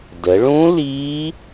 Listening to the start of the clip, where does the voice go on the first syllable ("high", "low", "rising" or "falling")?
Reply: rising